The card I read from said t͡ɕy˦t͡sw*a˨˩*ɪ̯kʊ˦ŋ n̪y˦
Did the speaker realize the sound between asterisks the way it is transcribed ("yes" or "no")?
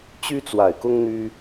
yes